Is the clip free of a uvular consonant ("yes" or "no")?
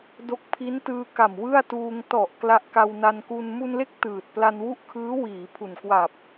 yes